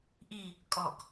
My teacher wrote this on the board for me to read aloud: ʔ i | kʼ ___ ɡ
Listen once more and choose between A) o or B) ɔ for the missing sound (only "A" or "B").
B